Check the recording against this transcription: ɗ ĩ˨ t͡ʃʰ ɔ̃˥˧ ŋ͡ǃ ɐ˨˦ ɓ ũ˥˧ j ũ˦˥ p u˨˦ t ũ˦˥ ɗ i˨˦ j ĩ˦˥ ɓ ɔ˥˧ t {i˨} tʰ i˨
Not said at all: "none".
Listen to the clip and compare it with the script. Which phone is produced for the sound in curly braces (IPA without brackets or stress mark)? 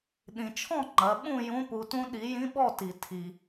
i˨